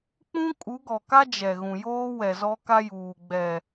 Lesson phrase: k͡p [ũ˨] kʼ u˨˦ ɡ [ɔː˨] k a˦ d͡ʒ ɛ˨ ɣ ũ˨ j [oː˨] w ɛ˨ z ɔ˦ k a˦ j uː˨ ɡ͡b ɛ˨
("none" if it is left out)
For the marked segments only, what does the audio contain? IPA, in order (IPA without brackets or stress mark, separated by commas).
ũ˦, ɔ˨, oː˦